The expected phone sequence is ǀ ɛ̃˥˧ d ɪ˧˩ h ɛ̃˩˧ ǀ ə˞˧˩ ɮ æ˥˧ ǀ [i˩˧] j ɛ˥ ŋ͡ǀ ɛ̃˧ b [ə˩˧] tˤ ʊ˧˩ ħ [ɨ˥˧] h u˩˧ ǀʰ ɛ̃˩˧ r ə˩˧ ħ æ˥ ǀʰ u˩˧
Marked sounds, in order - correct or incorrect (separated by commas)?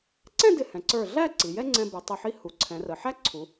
correct, incorrect, incorrect